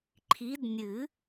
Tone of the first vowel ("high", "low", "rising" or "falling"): rising